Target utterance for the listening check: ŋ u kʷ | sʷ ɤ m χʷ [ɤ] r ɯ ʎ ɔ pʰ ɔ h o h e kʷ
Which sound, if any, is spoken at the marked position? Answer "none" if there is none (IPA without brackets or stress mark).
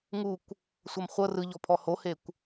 ɤ